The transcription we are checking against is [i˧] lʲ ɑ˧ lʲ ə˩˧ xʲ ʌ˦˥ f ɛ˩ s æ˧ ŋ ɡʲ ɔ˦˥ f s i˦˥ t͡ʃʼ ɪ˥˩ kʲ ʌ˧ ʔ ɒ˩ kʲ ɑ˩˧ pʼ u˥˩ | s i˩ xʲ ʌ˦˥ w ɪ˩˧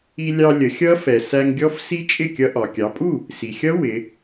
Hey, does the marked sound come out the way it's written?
yes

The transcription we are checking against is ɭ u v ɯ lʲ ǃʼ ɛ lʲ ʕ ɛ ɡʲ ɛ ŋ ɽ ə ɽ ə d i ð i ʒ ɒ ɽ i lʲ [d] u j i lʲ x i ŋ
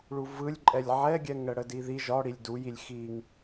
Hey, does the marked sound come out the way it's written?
yes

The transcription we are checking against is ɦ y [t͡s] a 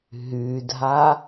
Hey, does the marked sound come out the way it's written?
no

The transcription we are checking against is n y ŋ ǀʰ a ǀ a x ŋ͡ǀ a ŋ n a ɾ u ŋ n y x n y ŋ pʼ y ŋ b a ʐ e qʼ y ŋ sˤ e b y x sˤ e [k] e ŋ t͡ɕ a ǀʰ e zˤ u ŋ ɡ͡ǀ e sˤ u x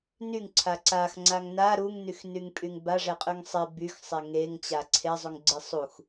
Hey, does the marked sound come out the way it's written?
no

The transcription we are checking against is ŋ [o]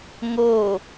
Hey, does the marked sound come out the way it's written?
yes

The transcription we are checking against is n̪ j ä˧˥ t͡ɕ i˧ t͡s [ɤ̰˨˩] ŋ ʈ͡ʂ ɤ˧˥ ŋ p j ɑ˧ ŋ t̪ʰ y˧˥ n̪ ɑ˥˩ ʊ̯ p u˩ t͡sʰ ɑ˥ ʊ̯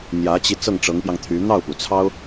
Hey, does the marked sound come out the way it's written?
no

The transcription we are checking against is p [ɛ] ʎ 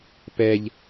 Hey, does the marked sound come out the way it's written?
yes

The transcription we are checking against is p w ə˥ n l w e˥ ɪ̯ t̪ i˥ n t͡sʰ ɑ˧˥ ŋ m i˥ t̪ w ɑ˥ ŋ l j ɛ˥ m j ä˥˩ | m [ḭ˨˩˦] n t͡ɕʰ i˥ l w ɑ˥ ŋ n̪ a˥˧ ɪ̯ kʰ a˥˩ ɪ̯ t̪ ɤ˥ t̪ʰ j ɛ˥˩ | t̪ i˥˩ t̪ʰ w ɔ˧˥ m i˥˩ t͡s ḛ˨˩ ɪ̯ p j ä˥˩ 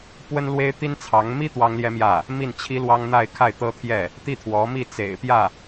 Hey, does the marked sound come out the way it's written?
no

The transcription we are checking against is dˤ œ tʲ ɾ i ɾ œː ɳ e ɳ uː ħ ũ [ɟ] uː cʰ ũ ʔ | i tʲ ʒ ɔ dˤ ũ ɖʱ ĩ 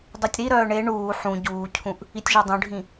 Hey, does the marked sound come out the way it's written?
yes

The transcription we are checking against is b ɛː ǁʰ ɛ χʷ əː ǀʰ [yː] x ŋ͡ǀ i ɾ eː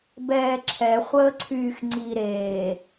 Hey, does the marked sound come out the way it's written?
yes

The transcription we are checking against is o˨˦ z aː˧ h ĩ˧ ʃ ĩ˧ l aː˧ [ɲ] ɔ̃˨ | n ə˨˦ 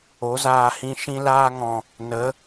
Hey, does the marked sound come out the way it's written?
no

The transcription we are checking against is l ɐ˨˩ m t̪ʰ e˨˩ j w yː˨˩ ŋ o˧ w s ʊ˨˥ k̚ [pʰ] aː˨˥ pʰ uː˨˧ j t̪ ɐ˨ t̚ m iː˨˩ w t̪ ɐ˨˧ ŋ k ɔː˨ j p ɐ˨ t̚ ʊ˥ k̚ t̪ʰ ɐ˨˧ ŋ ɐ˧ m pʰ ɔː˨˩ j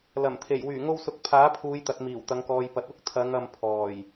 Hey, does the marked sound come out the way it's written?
yes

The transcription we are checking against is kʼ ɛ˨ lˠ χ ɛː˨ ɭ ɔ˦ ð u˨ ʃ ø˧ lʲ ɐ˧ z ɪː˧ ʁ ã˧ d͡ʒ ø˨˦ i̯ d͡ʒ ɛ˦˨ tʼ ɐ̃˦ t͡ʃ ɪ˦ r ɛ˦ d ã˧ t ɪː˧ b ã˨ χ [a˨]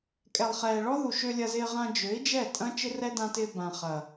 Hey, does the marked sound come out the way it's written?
no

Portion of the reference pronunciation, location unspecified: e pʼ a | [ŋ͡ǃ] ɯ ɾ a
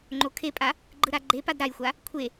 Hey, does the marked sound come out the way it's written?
no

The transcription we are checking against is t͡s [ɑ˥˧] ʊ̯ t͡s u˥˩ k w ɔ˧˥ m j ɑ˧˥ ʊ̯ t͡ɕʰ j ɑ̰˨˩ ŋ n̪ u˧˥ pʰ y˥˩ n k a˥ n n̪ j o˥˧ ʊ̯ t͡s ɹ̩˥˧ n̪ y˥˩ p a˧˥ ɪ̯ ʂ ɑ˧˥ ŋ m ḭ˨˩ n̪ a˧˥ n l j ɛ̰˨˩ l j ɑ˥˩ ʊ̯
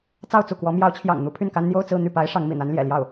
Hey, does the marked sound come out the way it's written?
yes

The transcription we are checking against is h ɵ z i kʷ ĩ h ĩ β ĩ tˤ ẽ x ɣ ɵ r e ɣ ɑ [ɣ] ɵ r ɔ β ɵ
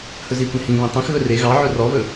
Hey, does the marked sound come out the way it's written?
no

